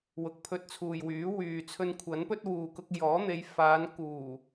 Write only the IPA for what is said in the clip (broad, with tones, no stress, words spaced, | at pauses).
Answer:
wʊ˨k̚pʰɵ˧t̚t͡sʰuː˨jwyː˨˥ wyː˨t͡sʰɵ˧nkʷʰɐ˨˥npɵ˥t̚ wuː˨kʊ˧k̚jɔː˨˥ n̪e˨˧jfaː˨˧nkuː˨˩